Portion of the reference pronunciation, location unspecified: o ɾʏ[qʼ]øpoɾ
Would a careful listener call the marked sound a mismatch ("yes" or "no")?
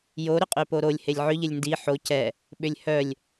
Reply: no